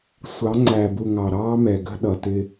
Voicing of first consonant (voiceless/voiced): voiceless